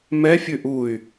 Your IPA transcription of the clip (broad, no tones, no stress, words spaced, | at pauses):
mɛ fʲʉʔuy̯